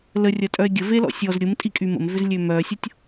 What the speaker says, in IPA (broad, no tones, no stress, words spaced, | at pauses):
lərʲɐtʼœe̯ ɡʲəvelɔ̰ sʲɔz ɾʲʊmtʼikʼy mə̰mvʏzlʲø mœsʲʊtʲ